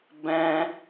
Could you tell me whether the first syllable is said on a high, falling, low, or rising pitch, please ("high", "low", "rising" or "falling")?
high